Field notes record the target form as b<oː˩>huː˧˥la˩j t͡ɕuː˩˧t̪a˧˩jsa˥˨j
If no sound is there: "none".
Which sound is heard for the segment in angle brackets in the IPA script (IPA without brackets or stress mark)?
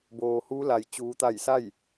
oː˩